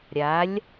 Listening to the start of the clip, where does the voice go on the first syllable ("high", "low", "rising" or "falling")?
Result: rising